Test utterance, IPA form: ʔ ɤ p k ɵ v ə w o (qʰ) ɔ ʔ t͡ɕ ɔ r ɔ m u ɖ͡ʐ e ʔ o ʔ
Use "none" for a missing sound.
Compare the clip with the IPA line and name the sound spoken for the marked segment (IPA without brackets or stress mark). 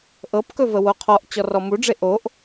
qʰ